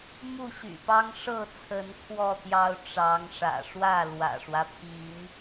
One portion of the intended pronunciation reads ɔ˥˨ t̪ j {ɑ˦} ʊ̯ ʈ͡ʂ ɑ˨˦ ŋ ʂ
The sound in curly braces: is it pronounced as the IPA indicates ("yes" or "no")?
yes